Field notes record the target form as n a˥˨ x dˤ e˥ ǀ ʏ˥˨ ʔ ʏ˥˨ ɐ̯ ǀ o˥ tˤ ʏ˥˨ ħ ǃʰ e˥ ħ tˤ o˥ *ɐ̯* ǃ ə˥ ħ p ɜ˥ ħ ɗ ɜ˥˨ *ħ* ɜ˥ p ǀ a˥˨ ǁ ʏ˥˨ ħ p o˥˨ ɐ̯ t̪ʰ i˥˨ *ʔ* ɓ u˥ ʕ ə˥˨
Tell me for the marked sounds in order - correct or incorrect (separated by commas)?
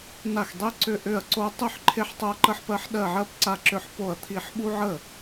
correct, incorrect, incorrect